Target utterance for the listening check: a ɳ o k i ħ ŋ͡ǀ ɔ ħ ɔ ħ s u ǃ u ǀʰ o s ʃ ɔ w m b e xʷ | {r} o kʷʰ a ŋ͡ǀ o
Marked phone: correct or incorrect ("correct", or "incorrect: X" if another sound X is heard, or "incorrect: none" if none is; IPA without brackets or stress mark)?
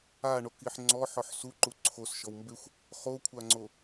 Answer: incorrect: χ